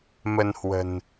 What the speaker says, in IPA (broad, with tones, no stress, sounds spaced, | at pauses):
m ə˧ n h w ə̤˨˩ n